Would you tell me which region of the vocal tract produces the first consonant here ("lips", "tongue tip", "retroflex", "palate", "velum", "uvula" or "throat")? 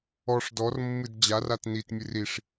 retroflex